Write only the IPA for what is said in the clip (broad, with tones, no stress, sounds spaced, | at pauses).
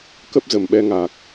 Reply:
k ə˦˥ p̚ z ə˨˩ m ɓ ɛ˧ ŋ a˨˩ k̚